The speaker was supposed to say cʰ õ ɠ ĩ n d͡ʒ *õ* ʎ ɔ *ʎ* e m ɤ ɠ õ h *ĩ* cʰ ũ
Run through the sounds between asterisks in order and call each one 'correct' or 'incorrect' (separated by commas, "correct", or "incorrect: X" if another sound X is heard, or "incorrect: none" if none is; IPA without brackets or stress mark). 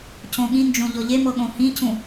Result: correct, correct, correct